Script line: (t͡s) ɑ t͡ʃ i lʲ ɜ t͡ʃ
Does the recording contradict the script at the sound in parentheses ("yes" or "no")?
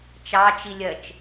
yes